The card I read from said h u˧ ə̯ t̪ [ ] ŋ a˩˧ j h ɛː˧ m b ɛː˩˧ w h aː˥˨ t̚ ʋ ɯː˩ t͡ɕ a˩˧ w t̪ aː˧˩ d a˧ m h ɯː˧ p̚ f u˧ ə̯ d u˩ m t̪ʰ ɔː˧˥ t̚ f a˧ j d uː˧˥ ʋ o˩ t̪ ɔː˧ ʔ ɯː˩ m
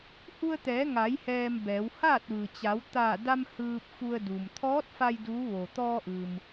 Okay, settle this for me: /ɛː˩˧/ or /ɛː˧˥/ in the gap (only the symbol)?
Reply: ɛː˩˧